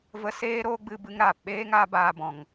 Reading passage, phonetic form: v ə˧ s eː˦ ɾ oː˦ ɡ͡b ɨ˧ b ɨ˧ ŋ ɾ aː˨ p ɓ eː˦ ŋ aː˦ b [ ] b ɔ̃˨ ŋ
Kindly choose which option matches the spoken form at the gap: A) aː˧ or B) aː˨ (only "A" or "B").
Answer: A